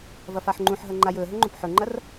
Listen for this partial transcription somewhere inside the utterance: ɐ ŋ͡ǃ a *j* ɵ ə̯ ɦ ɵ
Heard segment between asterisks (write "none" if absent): j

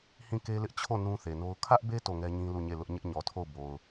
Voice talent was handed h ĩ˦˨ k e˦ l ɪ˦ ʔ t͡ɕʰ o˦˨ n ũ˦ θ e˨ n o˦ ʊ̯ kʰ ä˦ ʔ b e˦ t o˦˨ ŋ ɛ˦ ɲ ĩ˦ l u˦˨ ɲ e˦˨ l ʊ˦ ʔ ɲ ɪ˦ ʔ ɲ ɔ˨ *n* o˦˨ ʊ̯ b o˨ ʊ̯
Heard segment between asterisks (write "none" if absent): tʰ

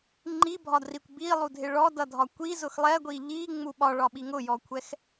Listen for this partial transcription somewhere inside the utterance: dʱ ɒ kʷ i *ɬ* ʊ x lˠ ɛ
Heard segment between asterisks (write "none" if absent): z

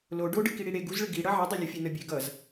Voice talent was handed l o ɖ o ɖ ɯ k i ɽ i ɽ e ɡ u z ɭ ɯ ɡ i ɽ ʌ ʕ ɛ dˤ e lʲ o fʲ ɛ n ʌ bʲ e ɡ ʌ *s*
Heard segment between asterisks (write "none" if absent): z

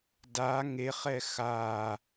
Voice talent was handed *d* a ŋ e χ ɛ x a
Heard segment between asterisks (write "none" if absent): d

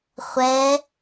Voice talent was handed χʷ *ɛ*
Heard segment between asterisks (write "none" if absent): ɛ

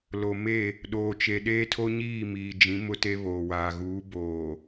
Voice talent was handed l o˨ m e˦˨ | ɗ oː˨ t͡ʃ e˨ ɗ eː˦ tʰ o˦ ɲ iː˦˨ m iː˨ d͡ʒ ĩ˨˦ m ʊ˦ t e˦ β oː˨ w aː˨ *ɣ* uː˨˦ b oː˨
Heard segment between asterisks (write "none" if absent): ɣ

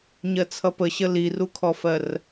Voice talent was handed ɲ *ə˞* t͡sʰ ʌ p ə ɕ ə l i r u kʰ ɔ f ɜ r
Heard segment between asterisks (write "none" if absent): ɜ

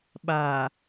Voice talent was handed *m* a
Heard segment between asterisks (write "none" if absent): ɓ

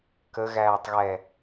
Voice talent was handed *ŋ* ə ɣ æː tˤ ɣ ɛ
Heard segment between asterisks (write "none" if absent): k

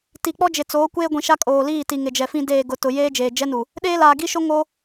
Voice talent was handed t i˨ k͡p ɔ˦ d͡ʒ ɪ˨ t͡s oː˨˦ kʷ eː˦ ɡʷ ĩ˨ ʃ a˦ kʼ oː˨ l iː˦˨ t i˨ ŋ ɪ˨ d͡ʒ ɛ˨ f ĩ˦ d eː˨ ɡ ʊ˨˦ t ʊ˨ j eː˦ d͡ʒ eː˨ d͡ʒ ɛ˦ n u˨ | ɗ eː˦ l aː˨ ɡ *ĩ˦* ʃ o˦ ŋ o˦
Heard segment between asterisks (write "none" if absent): i˦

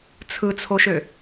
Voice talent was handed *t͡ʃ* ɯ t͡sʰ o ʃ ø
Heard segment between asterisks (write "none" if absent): t͡sʰ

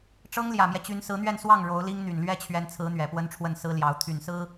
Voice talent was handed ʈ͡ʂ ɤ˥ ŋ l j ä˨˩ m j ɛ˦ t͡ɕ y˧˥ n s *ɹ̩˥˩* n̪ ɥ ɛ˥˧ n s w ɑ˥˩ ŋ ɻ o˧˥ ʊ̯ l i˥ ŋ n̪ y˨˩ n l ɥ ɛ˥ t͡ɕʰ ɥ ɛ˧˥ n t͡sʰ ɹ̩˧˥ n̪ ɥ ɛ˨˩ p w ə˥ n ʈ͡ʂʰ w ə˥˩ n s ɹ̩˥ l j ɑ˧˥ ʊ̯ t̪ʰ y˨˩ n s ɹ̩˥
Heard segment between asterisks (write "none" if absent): ɹ̩˧˥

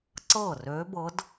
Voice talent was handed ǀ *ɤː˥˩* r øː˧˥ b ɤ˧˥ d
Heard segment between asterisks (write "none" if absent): ɤː˥˩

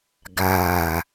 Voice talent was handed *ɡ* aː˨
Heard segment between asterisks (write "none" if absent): ɡ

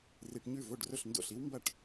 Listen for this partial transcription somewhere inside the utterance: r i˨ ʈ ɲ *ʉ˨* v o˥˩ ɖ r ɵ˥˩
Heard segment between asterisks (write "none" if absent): ʉ˥˩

